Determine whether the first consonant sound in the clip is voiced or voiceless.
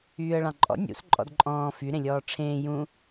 voiced